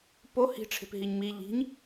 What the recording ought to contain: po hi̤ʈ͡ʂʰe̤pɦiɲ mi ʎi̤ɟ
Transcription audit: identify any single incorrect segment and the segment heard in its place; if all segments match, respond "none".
ɟ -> ɲ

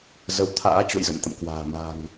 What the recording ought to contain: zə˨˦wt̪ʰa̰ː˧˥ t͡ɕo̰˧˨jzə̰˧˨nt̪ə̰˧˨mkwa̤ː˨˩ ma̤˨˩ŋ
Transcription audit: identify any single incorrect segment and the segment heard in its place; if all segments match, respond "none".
none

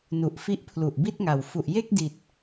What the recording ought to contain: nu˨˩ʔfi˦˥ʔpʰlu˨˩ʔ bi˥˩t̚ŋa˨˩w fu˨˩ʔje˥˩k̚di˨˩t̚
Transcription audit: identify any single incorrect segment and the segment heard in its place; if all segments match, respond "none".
none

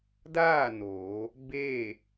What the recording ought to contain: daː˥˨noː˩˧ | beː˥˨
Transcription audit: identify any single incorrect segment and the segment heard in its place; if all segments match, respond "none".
none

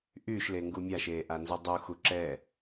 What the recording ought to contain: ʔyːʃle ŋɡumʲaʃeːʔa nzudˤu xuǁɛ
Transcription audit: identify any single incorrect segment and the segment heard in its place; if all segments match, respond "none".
none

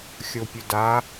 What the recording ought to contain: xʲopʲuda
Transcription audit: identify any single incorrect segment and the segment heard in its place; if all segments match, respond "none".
none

